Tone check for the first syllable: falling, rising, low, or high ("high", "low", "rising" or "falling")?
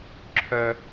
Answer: high